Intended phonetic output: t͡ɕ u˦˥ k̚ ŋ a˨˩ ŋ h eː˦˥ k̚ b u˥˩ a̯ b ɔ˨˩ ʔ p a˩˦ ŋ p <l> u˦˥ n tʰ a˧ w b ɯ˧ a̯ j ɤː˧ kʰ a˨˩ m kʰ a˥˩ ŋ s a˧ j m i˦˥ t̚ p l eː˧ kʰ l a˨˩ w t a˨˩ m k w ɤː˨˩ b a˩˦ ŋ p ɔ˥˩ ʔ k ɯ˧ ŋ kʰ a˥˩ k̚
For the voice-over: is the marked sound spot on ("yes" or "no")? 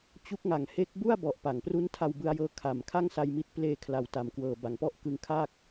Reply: no